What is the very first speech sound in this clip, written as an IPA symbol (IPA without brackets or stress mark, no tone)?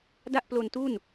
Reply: d